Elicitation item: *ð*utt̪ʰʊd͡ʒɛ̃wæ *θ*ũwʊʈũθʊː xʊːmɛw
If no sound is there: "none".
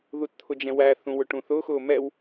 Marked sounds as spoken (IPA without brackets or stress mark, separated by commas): ð, θ